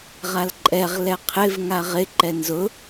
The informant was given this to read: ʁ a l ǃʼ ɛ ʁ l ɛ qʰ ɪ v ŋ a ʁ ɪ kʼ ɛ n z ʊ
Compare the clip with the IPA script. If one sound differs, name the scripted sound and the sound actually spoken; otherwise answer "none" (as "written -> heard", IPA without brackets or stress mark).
kʼ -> ǃ